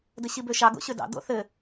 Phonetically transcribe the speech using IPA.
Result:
d ɘ ɕ i b ø ʃ ɑ ɡ o̰ ɕ ø d ɑ̰ d o̰ θ ɘ

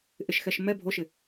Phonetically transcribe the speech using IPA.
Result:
ʔ ɪ ʃ x ɛ ʃ m ɛ bʱ o ʃ ɪ

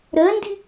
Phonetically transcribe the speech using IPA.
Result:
ɾ ɜ n d i

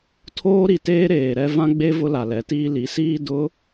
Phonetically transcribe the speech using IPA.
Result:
tʰ oː˦ ɾ i˨ t eː˦ ɾ eː˨ ɾ ɛ˦ v ã˦ ɡ͡b e˦ v ʊ˦ l a˨ l ɛ˨˦ t iː˦ l i˨˦ s iː˦ d ʊ˨˦

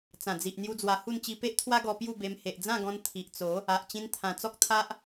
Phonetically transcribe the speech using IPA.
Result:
t͡s ã˨˩ d͡z i˨ ʔ n̪ j u˧ d͡z w a˧ h u˥˧ n t͡ɕ i˧ p e˦ ʔ t̪ʰ w a˦ ɡ ɔ˧ p j u˥˧ b e˧ m h e˨ ʔ d͡z ã˥˧ ɡ ɔ̃˧ n t̪ʰ i˨ ʔ t͡s o˨˦ | a˨ ʔ t͡ɕ ĩ˧ n t̪ʰ ã˨˩ t͡s ɔ˦ k̚ t̪ʰ a˦ ʔ

